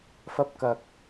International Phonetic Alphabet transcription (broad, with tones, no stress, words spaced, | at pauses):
fɐ˧p̚kɐ˨k̚